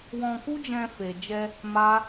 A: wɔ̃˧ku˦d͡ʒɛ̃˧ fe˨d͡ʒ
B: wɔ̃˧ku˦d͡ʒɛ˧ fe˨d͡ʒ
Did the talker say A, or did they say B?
A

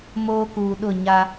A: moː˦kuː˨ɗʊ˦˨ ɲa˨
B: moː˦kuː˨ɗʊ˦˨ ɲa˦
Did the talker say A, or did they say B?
B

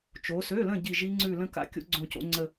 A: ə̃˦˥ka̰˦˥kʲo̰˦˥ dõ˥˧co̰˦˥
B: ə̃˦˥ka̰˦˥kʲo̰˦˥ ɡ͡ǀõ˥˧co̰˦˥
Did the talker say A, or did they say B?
B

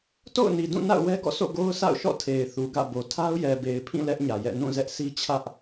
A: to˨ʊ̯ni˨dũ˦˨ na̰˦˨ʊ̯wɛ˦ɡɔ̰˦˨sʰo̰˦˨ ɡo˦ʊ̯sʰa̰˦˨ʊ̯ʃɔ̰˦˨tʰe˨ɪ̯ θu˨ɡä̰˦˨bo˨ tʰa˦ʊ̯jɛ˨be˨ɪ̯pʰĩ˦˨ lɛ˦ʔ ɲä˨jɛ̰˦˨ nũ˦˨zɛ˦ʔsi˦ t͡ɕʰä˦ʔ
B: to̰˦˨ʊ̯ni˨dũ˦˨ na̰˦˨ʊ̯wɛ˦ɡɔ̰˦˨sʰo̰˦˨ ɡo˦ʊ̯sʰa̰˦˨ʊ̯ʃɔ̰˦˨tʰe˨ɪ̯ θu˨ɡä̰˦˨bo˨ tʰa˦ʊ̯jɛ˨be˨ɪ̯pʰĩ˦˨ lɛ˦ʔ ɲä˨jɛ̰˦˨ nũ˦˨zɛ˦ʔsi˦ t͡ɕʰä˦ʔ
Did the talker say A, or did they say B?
B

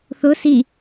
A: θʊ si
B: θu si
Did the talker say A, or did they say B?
A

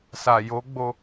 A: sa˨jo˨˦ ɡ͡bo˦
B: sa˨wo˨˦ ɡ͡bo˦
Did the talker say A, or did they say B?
A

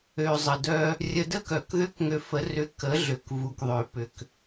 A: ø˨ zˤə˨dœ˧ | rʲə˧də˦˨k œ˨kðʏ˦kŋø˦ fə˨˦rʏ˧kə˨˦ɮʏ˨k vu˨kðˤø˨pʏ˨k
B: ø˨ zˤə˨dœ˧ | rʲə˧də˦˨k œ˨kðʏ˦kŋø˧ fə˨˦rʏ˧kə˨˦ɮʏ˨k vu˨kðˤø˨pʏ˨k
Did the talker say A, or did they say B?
B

